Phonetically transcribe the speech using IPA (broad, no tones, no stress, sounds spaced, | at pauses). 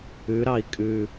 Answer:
ʉ ɾ ɑ i̯ kʼ ʉ